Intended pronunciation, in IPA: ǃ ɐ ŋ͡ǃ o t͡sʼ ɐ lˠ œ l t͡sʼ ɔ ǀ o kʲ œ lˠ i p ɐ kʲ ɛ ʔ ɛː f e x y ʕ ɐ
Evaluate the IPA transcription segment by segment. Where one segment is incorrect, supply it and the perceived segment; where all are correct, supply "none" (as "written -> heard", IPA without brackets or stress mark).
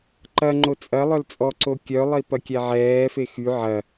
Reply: ʔ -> ʕ